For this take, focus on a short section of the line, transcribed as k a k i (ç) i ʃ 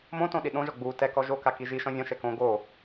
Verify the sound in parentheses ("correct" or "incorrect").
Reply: incorrect